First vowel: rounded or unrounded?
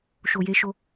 rounded